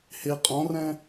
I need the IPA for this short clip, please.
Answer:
he qʼɔ̃rɛ̃

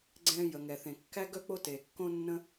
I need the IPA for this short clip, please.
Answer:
ɡ͡ǀɛ̃ː˥ jə˩ŋɛ˩ θẽ˩kːæ˥ɡœ˥ k͡po˥teː˩ kːõ˥nːə̃˥

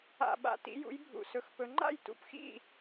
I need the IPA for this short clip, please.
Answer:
a̰˨˩ɓa̰˨˩ tḭ˨˦jṵ˨˦jbʱṵ˨˩ sɵ˨˦xpɵ˨˦ ŋ͡ǃa̰˥˩jtṵ˨˦p xḭ˥˩

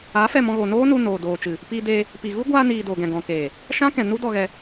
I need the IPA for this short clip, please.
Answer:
aː˨˦fɛ˦˨mɔ̃˧ɣoː˨ noː˦nu˧ noː˨doː˨ t͡ʃɨ˨ | piː˧deː˧ | pi˨ɣu˦ ɡʷaː˧niː˨ doː˨ɡɛ̃˨ɡɔ̃˨keː˨ | ʃã˦kɛ̃˨ nu˦dɔ˧ɣɛ˧

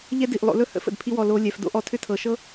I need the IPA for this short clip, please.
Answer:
ʎɛ˦di˨ʔ lˠo̰˧lɵ˦hə̰˦ fə̰˨dpʰi˧wɔ˨ lo˧ lʲɛ˨f do̰˦ʔɔ˨˦tʰʏ˦ tʰɤ˨ ʃɤ˦

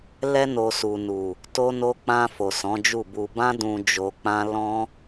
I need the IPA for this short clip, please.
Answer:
lɛ˧no˨ su˨nu˨ | to˧no˧k͡pã˧ fo˨sɔ̃˨˦d͡ʒu˦˨bu˧ bã˦dũ˧ d͡ʒo˧k͡pã˦ lɔ̃˦

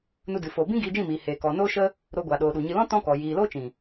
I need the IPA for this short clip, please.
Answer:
nu˧dɨ˨ fo˨bĩ˦ ɡiː˧d͡ʒĩ˦˨miː˨heː˨ kɔ˨noː˦ʃə˦ | ɾo˧ɡʷa˨ ɗoː˨ɗu˨ɲɨ˧ lɔ̃˦ tɔ̃˦kɔ˨ jiː˨loː˦ t͡ʃĩ˨

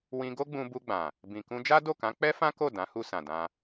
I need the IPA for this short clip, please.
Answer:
wĩ˧ɡo˦ɡ͡bũ˧ bu˧ɡ͡bã˨ | bĩ˨kũ˧ d͡ʒa˦do˦˨kã˨˦ k͡pɛ˦fã˦ko˦˨ dã˨˦hu˧sã˨ dã˧

